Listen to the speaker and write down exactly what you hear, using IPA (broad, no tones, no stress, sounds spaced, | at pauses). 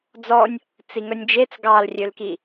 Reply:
d͡z ɔ nʲ | t͡s i ŋ œ nʲ d͡ʒ e t͡s ɡ ɑ l rʲ ø l k i